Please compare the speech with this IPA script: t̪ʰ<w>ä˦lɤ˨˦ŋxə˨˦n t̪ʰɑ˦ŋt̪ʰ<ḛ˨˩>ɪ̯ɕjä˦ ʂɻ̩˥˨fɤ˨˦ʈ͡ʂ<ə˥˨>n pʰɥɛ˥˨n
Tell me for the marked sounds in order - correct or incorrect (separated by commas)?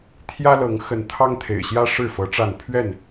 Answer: incorrect, correct, incorrect